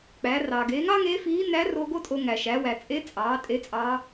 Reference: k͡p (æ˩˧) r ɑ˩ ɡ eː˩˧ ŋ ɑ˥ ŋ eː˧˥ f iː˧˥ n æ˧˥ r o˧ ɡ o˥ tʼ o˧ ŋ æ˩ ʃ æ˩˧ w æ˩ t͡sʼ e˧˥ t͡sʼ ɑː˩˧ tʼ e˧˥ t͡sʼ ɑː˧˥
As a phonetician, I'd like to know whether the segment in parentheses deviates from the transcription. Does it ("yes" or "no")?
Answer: no